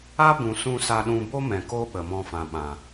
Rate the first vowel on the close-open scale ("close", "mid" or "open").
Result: open